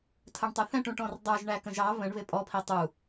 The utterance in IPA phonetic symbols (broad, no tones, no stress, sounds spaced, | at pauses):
tʰ ə ɳ tˤ ʊ θ ɛ̃ ʈ ũ ʈ ɔ̃ r dˤ ə˞ ʒ ɳ æ k ə̃ ʒ ɑ β ə̃ ɳ β ɪ pʼ ɔ pʰ i tˤ u